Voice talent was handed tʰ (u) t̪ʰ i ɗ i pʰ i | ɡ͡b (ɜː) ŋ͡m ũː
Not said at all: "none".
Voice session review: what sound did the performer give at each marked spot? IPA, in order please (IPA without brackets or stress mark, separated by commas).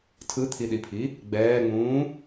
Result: ɯ, ɛː